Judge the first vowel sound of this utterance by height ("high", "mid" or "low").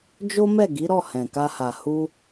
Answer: mid